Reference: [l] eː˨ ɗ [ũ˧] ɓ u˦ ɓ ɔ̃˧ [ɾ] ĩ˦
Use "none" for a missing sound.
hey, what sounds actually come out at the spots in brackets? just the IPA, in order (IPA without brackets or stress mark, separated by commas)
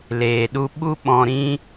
l, u˧, ɾ